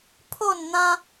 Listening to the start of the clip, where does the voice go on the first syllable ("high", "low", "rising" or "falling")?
falling